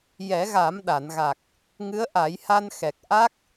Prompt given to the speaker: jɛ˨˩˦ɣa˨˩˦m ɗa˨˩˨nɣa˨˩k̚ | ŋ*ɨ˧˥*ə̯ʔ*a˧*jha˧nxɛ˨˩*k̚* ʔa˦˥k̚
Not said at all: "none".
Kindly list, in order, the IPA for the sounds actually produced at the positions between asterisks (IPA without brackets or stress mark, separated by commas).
ɨ˧˥, a˨˩˦, k̚